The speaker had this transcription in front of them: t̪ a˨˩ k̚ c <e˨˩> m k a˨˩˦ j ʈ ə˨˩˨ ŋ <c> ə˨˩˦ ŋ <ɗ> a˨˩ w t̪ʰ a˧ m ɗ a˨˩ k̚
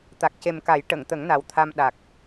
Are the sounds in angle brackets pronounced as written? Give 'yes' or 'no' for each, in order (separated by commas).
yes, no, no